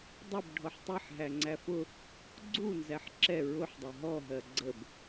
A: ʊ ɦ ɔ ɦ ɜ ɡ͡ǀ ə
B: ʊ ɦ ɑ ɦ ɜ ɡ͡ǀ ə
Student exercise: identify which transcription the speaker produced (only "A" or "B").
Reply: A